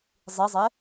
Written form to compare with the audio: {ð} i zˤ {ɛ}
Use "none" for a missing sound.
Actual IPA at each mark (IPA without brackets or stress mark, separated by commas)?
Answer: zˤ, ɛ